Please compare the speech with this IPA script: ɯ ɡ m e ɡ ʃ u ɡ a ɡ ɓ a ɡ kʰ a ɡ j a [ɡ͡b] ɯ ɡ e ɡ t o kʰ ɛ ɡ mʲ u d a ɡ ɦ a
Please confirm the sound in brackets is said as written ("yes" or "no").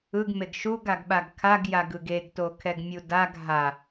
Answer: no